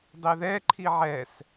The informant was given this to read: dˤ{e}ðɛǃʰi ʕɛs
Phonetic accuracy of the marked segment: correct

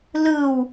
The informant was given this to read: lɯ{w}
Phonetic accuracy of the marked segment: correct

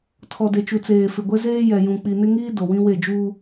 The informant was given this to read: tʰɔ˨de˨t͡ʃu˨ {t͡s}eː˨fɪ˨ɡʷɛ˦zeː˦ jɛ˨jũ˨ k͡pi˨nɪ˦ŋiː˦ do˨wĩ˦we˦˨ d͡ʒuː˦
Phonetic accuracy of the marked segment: correct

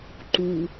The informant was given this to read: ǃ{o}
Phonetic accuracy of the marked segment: incorrect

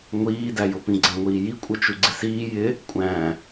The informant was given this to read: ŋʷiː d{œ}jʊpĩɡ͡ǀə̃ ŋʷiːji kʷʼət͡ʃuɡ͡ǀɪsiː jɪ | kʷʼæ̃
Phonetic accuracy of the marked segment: incorrect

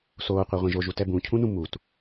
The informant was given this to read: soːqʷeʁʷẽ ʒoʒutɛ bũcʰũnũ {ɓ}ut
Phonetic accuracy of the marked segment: incorrect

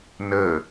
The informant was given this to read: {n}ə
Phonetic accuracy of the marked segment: correct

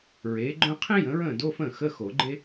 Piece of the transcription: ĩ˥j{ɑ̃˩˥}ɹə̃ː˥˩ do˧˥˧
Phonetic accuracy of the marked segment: incorrect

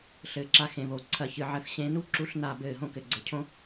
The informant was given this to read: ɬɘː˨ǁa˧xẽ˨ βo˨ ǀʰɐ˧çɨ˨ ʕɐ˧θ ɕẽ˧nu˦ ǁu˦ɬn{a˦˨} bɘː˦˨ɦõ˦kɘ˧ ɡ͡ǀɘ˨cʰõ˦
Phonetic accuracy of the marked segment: correct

